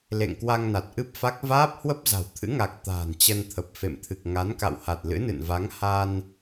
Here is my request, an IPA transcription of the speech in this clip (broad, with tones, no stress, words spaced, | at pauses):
lḛ˧˨ŋkwa˧ŋna˨˩t̚ ʔɨ˦˥p̚fa˦˥k̚ vaː˦˥p̚hwə˦˥p̚za̤˨˩w t̪ʰɨ̰˧˥ŋa˨˩k̚ t̪a̤ː˨˩nt͡ɕə˧n t̪ʰə˨˩p̚ fḛ˧˨mt̪ʰɨ˨˩k̚ ŋa˨˦nka̰˧˨w ha˨˩t̚lɨ̰˧˥nɨ̰˧˨nva˨˦ŋ ha˧n